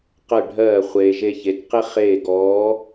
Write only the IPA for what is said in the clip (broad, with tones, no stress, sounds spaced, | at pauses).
q ɜ˦˨ ɖʱ ɜː˦˨ χʷ eː˥ ʒ e˥ ç e˧˥ t q e˥ χ eː˦˨ ɡ ɔː˧˥